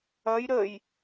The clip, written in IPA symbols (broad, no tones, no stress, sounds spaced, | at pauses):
ɐ j ɾ ə j